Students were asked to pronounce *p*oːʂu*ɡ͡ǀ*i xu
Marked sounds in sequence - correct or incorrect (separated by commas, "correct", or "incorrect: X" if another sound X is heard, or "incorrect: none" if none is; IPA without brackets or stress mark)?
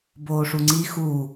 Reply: incorrect: b, incorrect: ŋ͡ǀ